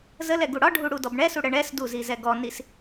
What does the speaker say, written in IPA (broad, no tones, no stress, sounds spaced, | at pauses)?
z ə l ɛ ɡ u ɽ ɒ ɖʱ u ɽ u d ɔ b ɳ ɛ s u ɽ ə ɳ ɛ s d u z i z ɛ ɡ ɔ n i s